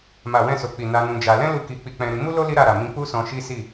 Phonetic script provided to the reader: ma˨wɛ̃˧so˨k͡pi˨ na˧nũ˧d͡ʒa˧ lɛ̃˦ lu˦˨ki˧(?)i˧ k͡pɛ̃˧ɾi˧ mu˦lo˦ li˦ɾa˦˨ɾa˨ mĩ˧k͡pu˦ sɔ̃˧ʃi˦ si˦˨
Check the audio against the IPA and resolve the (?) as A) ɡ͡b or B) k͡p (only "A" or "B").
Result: B